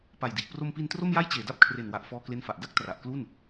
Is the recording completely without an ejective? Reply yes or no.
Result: yes